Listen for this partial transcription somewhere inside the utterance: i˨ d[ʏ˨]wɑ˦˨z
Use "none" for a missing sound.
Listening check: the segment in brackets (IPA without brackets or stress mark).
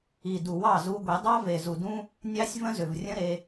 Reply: u˨